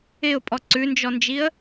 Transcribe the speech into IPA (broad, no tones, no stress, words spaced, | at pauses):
ɪʊ̯pʼɔ ǀʉnd͡ʒɔnd͡ʒiə̯